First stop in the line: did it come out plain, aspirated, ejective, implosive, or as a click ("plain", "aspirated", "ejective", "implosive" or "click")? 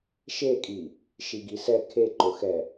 ejective